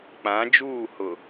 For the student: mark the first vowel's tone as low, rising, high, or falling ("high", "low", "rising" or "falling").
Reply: rising